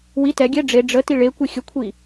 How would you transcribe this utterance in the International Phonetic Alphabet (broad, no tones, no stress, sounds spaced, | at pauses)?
w i t ɛ ɡʲ ɛ ɖ͡ʐ e ɖ͡ʐ ə t i ɭ e kʷ i xʲ ə kʷʰ i